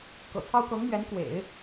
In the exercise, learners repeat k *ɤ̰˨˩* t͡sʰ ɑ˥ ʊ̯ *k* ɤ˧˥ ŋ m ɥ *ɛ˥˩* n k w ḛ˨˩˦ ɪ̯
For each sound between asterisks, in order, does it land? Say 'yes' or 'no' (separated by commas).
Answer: yes, yes, no